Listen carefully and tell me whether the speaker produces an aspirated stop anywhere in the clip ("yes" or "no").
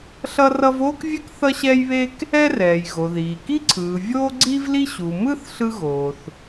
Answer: yes